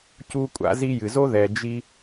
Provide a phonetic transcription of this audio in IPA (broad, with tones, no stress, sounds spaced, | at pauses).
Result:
c u˥ kʷʼ a̰˥ z i˥ j ɨ˩ z o˥ ð ɛ˩ d͡ʒ i˧